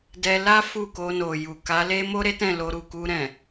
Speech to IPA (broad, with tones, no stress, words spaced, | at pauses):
dɛ˧la˦ fu˦˨ko˧no˨ju˨ ka˨˦ le˦mo˦ɾe˦ tɛ̃˦˨lo˧ɾu˨ ku˧ɾɛ̃˨